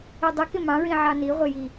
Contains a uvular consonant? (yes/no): yes